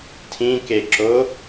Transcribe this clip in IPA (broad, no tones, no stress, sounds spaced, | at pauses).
tʰ ĩ k e ǁ o